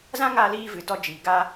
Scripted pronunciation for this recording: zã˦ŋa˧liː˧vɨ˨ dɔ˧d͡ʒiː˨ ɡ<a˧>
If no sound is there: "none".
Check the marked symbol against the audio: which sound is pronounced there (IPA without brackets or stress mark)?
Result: a˧